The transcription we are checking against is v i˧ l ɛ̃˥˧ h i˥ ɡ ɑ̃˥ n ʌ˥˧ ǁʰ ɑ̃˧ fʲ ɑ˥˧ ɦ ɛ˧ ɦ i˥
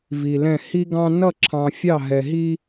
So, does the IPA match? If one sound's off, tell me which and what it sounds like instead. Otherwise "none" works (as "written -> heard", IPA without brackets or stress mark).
none